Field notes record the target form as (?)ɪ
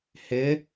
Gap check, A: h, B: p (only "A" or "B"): A